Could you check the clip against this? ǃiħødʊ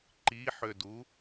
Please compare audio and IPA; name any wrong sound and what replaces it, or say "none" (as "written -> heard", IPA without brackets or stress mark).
ʊ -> u